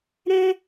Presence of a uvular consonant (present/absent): absent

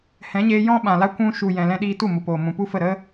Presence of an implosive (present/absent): present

